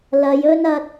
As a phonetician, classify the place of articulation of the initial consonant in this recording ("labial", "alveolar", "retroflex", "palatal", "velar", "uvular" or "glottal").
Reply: alveolar